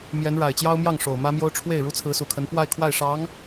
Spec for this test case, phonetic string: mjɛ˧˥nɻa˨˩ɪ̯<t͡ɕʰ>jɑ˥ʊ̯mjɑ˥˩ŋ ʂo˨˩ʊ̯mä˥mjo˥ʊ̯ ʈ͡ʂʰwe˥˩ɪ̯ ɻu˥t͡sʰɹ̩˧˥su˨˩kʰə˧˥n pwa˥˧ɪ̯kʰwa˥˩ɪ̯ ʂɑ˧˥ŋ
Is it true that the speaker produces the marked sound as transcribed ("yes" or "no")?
no